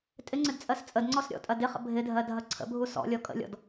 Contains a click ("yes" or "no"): yes